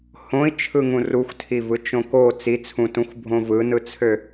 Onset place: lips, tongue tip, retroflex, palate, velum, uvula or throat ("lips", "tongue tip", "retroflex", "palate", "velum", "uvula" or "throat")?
throat